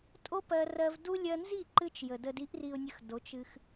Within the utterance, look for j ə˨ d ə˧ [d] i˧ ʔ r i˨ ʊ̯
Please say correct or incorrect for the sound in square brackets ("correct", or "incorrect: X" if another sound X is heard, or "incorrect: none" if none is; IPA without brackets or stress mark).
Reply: correct